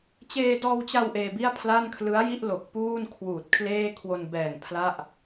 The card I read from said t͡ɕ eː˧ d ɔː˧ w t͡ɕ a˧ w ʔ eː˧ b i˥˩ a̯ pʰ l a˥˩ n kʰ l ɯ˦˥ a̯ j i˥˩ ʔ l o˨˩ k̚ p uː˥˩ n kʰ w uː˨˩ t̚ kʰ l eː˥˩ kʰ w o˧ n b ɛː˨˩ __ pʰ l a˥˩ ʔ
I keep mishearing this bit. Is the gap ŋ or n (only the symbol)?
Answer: ŋ